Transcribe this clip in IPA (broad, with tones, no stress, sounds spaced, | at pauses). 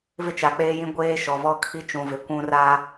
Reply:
v ɪ˦ t͡ʃ a˨ k͡p eː˦ j ĩ˦ ɡʷ eː˦ ʃ ɔ˨ v ɔ˦ kʰ i˦ t͡ʃ ũ˨ v ɪ˨ kʷ ũ˦ r a˦